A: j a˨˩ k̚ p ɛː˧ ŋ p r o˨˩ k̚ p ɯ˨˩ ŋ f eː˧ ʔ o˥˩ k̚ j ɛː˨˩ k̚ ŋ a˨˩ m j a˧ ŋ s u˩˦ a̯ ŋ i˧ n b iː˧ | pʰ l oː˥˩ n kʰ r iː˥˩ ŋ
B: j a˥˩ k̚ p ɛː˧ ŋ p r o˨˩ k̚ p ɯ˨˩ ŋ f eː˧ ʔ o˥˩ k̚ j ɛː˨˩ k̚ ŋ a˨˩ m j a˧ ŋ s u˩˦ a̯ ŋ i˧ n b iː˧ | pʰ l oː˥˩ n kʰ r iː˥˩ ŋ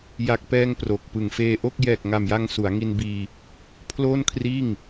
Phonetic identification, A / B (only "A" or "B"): A